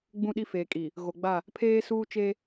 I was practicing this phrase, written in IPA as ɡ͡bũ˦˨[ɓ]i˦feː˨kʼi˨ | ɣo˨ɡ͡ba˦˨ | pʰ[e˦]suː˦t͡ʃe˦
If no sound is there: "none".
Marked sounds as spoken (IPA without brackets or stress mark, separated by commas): ɗ, eː˦